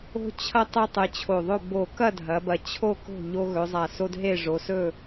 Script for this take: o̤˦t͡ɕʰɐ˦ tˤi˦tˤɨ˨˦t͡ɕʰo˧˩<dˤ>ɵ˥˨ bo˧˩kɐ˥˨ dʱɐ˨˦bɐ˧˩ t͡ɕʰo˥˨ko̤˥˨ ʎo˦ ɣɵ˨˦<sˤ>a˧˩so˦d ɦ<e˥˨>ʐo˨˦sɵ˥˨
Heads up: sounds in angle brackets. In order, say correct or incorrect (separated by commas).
incorrect, incorrect, correct